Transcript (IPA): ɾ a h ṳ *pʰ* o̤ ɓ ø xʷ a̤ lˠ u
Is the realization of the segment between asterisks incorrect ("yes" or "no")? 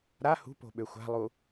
yes